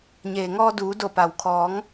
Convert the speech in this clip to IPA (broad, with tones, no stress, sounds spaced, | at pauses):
ɲ eː˩ ŋ ɔː˧ d uː˩˧ d o˧˩ p a˩ w kʰ ɔː˩˧ ŋ